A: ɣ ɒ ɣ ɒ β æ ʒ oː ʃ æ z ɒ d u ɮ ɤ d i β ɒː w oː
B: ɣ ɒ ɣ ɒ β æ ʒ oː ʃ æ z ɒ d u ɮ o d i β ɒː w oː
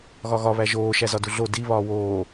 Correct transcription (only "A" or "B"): B